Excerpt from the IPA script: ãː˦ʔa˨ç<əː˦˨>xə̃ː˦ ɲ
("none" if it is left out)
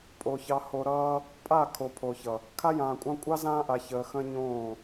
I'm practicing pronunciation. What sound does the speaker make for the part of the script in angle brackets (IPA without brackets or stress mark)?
əː˨